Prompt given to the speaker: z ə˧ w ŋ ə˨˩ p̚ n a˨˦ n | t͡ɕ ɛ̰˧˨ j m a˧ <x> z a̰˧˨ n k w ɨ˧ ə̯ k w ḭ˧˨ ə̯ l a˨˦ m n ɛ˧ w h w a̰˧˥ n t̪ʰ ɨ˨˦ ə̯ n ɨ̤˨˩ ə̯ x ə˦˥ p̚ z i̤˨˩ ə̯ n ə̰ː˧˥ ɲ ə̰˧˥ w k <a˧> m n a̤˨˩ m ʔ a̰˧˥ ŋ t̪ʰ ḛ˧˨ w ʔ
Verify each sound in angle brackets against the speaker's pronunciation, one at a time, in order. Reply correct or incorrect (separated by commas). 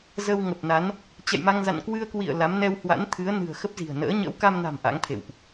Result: incorrect, correct